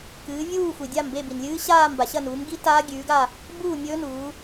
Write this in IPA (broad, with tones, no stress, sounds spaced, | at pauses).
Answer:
k ɨː˨˦ vʲ uː˥˧ xʷ i˨ dʲ a˥˧ m b e˥˧ b i˨ n lʲ ɨː˦˥ ɕ aː˥˧ m b a˨ ɕ ɐ˥˧ n uː˨˦ m ɡ i˦˥ t aː˦˥ ɡʲ ʉː˨˦ ɡ a˥˧ | b uː˥˧ mʲ ɵː˦˥ n uː˨˦